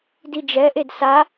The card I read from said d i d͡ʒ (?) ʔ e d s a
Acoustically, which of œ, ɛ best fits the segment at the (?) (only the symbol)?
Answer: ɛ